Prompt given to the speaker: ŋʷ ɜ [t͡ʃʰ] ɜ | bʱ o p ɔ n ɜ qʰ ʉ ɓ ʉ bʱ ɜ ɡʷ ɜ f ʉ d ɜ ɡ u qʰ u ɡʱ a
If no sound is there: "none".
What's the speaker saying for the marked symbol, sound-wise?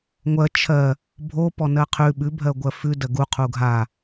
t͡ʃʰ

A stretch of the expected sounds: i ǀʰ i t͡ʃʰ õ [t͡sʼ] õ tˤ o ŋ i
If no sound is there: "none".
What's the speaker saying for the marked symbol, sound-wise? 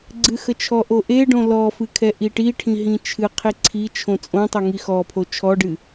t͡sʼ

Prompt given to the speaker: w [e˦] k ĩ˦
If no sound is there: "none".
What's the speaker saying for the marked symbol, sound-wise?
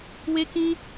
e˦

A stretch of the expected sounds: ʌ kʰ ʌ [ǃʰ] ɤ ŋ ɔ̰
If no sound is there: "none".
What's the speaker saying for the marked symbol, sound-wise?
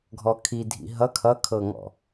kʰ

